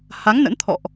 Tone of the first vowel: rising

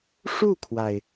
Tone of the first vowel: falling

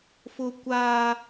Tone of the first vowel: high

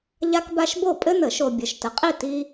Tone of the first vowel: high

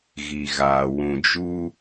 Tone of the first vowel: low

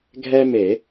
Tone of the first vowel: high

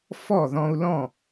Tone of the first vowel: falling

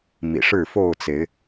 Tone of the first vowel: low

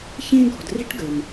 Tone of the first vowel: high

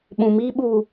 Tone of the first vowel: low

